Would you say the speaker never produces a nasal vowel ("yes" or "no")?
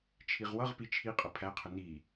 yes